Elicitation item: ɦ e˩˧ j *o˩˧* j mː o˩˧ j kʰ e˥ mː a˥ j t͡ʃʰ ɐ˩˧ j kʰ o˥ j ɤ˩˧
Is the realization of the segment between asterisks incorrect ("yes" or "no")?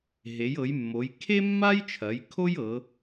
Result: yes